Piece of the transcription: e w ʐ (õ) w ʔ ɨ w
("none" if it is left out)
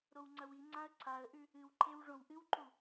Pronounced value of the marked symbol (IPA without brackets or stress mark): õ